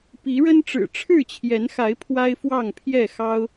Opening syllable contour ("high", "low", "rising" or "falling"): rising